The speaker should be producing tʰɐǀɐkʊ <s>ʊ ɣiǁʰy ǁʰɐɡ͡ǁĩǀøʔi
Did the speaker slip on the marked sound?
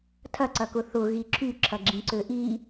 yes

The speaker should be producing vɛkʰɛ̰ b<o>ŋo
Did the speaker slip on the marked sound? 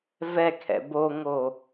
no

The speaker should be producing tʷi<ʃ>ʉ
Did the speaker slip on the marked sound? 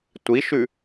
no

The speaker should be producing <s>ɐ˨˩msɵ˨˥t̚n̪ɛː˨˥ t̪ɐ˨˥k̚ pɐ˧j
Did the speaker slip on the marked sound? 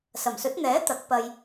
no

